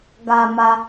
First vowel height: low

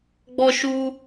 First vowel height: mid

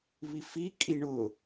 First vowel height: high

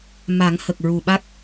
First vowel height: low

